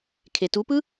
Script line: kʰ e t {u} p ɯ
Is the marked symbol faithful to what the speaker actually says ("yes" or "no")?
yes